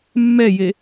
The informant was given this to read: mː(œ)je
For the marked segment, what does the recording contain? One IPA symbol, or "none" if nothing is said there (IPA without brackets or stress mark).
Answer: ɛ